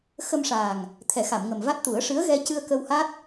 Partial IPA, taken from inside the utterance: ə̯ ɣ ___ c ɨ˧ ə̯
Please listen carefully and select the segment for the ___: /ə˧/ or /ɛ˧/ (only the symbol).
ɛ˧